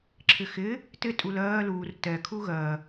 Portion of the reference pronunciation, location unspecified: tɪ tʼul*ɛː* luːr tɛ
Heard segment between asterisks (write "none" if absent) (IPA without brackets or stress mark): ɜː